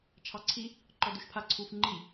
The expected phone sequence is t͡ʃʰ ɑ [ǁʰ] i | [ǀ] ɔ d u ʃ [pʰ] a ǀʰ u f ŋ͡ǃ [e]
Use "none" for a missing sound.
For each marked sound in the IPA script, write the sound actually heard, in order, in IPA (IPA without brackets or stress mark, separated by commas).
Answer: ǀʰ, ǃ, pʰ, i